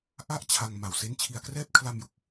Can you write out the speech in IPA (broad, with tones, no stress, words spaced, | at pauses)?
ʔa˥˩ʔt͡ɕʰa˧ŋ ma˨˩wse˦˥nt͡ɕʰi˧a̯krɛː˥˩p̚ kʰla˧mju˨˩k̚